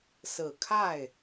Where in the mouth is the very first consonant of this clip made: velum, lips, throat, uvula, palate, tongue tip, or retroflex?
tongue tip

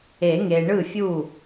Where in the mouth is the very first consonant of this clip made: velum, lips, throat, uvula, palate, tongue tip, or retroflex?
velum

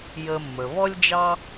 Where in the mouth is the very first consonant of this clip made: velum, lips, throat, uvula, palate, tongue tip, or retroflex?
palate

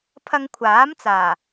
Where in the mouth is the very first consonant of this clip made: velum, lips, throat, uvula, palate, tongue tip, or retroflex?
lips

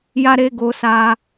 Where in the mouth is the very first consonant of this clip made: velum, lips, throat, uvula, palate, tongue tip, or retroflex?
palate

